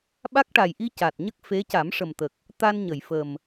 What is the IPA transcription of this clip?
ɓ a˦˥ k̚ ʈ a˨˩ j ʔ i˧ c a˨˩ t̚ ɲ ə˦˥ k̚ f e˧˥ c a˨˩˦ m ʂ ə˨˩ m t̪ ə˨˩ k̚ | t̪ a˧ n ɲ ə˨˩˨ j f ə˨˩ m

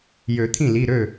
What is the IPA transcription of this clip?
j ø˨˩˦ t̪ʰ ĩ˥˩ l i˩˧˩ ɾ ø˥˩

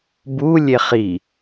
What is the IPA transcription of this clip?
b u lʲ e χ i

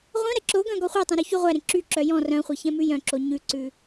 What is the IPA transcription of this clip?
ʁʷ œ̃ ɾ ɛ ǁ o ɡ œ̃ ɡ ɔ χʷ æ tˤ ɛ̃ ɾ ʉ ç y ʁʷ æ ɾ ẽ ǁ y ǁ œ j ɔ̃ r œ̃ χʷ ɛ ç ɛ̃ m ʉ j œ̃ ǁ o ɲ ʉ ǀ ʉ

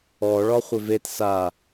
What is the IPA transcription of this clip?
ɔ ɭ ɒ χʷ ɪ v e t s a

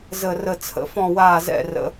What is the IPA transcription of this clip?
z ə˥˧ r ə˥˧ t͡sʰ ə̰˧˥ f ɔ̃˥˧ w aː˥˧ z ɛ̰˥˧ r ə̰˧˥

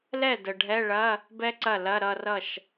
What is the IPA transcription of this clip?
l ɛ˥˩ d ə˨ ɖʱ ɛ˧˥˧ ɭ ɐ˧˥˧ | b ɛ˥ ǀ ɐ˥˩ l ɐ˧˥˧ ɾ ʌ˥˧ r ʌ˥˩ ʃ

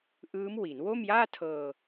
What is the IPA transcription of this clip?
ʔ ɯː˦˥ m w i˩˦ n w o˥˩ m j aː˥˩ tʰ ɤː˧

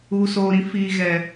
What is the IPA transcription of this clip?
uː˨ s oː˨ ɾ ĩ˦ f iː˨ ɣ ɛ˨

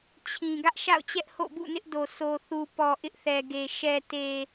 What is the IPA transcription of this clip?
t͡ɕʰ ĩ˨ ɡ ä˦ ʔ ʃ a̰˦˨ ʊ̯ t͡ɕ ɛ˦ ʔ h o̰˦˨ b ṵ˦˨ n ɪ˦ ʔ d o˨ sʰ o˨ θ u˨ p ɔ˨ ʔ ɪ˦ ʔ θ ɛ˨ ɡ e˨ ʃ ɛ˨ t e˨

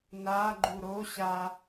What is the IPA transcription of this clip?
n a ɡ͡ǃ u ɾ o ɕ a

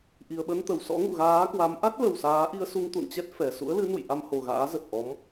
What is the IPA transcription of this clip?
ʔ i˨˩ ə̯ ɓ ə˧ n t̪ ə˧˩ w s ɔ̰˧˥ ŋ ṵ˧˨ ɣ aː˨˦ k w a˨˦ m ʔ a˦˥ t̚ l ə˨˩ w s aː˨˦ ʔ i˧ ə̯ s u˧ ŋ t̪ ṵ˧˨ n t͡ɕ ɛ˦˥ t̚ f ɛ˨˩ s ṵ˧˥ ə̯ l ɨ˨˦ n ṵ˧˨ j ʔ a˧ m h o˨˩ ɣ a̰ː˧˥ z ə˨˩ t̚ ʔ ɔ˨˦ m

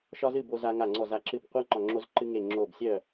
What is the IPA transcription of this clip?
ʃ ɒ˥ z ɨ˥˧ b o˥ z a˥ ŋ a˥˧ ŋ͡ǀ ɔ˥˧ z a˥˧ ǁ ɨ˥˧ b qʷ a˥ ŋ͡ǃ ɒ˥˧ ŋ͡ǁ o˥ z ǃ ɨ˥ ŋ e˥˧ ŋ͡ǁ o˥˧ b sʲ œ˥˧

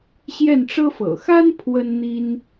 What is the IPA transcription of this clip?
ɕ j ɛ˥˩ n ʈ͡ʂ ɤ˥ f ɤ̰˨˩ x a˥ n pʰ w ə˥ n n̪ i˥ n

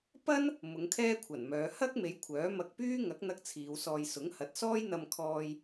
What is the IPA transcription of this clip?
p ɐ˥ n | m ʊ˨˧ ŋ kʰ ɛː˥ kʷʰ ɐ˨˩ n m œː˨˧ h ɐ˥ k̚ m e˨˧ j kʷʰ œː˨˥ m ɐ˧ k̚ p yː˥ ŋ ɐ˨˥ k̚ n̪ ɐ˧ k̚ t͡sʰ iː˨˧ w s ɔː˧ j s ʊ˨˥ ŋ h ɐ˨˥ t̚ s ɔː˥ j n̪ ɐ˧ m kʰ ɔː˧ j

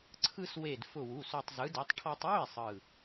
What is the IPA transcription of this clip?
ǀʰ ɯ˧ s w e˧˩ d f ʊ˧˩ w u˩˧˩ s o˧ tˤ z ɯ˨˥ d ɛ˨˥ tˤ ʈʰ ɔ˧ tˤ w ʊ˥˨ e̯ sˤ ɯ˧˩

